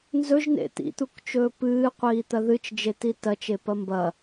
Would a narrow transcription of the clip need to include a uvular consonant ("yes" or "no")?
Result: yes